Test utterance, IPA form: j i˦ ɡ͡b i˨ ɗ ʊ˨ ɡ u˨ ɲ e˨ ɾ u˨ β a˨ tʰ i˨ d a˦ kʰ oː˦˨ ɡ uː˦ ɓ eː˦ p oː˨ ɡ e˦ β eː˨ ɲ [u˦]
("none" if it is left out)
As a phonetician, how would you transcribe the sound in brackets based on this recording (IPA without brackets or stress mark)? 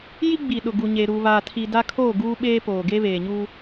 u˦